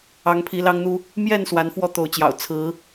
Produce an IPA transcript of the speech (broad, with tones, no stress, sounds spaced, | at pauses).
ɑ˨˦ ŋ pʰ i˨˦ l ɑ˦ ŋ n̪ u˦ | m j ɛ˥˨ n s w a˨˦ n f w ɔ˦ t̪ o˨˦ ʊ̯ t͡ɕ j ɑ̰˨˩ ʊ̯ t͡sʰ ɹ̩˨˦